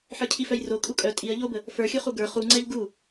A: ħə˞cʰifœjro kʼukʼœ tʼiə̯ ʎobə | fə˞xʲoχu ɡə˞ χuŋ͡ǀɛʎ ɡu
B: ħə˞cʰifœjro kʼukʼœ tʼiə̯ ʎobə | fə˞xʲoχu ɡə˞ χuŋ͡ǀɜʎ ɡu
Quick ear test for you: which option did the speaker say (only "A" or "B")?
A